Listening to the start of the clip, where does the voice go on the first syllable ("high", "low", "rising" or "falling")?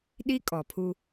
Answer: high